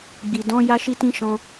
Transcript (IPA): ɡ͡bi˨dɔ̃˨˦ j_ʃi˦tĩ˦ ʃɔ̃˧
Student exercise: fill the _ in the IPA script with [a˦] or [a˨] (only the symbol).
a˦